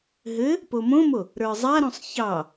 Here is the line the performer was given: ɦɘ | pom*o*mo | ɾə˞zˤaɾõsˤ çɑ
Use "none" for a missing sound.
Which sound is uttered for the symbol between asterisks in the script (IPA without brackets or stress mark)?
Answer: õ